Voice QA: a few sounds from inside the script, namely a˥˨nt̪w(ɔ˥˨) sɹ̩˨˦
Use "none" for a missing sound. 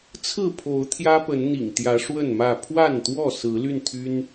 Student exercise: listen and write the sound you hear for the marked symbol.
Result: ɔ˥˨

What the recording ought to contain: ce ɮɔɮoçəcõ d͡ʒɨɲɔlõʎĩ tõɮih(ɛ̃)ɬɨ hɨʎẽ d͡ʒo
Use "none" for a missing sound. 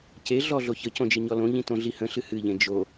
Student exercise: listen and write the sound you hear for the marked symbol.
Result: ə̃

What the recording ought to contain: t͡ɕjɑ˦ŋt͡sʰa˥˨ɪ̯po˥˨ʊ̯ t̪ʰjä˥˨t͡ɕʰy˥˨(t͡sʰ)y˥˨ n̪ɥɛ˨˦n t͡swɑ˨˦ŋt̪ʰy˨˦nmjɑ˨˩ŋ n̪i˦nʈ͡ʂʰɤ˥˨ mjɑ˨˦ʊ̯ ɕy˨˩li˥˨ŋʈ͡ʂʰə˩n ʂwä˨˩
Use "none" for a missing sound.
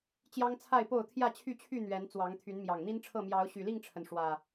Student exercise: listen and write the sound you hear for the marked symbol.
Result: t͡ɕʰ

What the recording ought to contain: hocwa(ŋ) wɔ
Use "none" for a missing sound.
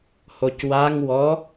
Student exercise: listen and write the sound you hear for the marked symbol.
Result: ŋ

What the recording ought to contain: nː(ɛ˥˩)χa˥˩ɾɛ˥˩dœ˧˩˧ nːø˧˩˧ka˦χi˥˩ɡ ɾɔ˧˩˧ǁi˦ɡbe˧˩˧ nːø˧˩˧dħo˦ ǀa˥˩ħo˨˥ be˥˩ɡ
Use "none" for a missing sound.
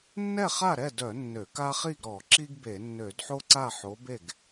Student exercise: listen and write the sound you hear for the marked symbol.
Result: ɛ˥˩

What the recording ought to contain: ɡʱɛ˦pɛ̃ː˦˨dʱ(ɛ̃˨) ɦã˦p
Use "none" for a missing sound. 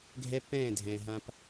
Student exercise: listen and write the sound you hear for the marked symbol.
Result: ɛ̃˨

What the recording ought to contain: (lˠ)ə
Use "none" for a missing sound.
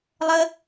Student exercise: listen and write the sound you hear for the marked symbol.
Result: lˠ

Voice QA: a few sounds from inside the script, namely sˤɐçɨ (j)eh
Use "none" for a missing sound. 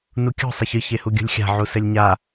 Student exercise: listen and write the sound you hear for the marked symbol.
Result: ç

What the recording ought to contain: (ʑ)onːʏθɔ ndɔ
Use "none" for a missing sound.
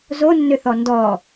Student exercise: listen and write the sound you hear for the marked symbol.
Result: z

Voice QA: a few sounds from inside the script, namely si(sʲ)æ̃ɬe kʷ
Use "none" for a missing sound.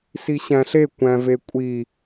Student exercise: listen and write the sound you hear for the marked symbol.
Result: ɕ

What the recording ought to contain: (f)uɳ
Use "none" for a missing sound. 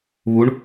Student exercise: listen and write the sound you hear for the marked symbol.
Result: β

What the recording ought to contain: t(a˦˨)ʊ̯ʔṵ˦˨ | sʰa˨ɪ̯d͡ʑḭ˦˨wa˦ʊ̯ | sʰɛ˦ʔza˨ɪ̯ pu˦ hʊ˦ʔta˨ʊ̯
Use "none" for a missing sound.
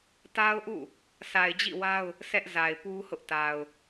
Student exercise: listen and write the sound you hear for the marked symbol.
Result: a˦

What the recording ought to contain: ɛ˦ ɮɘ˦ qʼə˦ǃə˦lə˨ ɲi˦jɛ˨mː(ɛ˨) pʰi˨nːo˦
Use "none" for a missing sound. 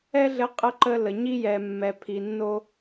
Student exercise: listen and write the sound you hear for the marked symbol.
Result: ɛ˨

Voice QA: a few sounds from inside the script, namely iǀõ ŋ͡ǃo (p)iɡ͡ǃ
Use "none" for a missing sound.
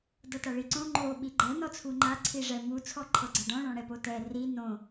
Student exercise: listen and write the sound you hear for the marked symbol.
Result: ɓ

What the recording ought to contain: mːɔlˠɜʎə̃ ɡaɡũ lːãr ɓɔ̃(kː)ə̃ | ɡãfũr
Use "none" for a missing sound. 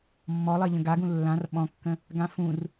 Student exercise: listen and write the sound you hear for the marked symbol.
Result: kː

